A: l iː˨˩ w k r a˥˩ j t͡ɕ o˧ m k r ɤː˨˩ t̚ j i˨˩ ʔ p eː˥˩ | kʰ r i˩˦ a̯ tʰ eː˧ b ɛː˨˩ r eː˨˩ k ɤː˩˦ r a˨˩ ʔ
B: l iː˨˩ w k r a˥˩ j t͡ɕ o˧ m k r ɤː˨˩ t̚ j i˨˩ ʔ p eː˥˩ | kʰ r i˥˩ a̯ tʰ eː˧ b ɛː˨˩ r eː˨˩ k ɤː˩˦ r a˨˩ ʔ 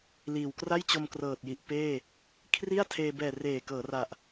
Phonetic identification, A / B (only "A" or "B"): B